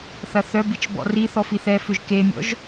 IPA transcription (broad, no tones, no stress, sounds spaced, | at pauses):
θ ɐ θ œ b i t͡ʃ b ɔ̰ r i θ ɔ f i θ ɛ f ʏ ʒ k e mʲ ɔ̰ ʒ